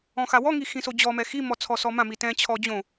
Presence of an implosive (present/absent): absent